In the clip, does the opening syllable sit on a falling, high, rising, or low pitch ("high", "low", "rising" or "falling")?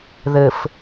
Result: low